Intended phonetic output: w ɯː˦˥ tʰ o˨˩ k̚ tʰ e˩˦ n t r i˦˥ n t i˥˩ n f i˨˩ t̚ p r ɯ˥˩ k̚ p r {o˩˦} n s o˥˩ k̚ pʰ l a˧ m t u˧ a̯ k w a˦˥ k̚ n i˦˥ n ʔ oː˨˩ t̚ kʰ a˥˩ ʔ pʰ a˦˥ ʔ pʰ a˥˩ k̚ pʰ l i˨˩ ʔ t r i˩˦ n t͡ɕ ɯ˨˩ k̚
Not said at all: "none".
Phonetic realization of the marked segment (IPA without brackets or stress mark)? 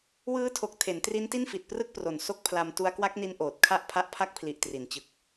o˨˩